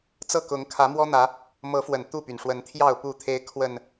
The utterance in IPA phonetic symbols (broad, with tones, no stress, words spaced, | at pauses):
t͡sɤ˥˨kʊ˨˦ŋ kʰä˨˦mwɔ˦n̪ä˨˦ | mɤ˨˦fwə˨˩n t̪u˥˨py˩nʂwə˨˦nt̪ʰjɑ˥˨ʊ̯ pu˥˨t̪ʰe˦ɪ̯ kʰwə˨˩n